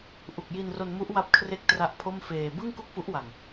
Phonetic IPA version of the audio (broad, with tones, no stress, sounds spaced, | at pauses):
ʔ u˨˩ k̚ j i˧ n r o˧ n m u˦˥ ʔ w a˥˩ p̚ kʰ r e˥˩ k̚ t r a˦˥ ʔ pʰ o˥˩ m f eː˧ b ɯ˥˩ ŋ k u˥˩ k̚ f u˦˥ ʔ w a˨˩ ŋ